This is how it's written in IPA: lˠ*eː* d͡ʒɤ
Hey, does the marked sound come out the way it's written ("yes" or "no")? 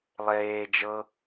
yes